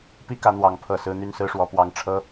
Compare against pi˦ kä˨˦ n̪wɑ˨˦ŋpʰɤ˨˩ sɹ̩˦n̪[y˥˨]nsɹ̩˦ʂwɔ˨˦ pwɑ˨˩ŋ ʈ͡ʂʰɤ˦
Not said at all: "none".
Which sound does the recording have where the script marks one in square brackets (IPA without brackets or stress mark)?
y˥˨